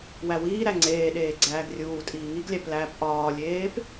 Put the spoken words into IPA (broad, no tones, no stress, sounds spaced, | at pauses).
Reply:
w æ w iː ɾ æ ŋ͡ǀ eː ɗ eː ɡ͡ǀ æː ɡ rʲ uː tʼ iː ŋ i ɡ lʲ æ p l æː p ʔ ɒː lʲ eː p